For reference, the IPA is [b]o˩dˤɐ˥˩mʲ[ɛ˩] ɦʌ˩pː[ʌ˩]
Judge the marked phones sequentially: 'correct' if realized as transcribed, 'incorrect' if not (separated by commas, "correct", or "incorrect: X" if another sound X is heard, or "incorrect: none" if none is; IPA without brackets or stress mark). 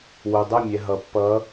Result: incorrect: w, correct, incorrect: ʌ˨˦